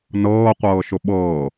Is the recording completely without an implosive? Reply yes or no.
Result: no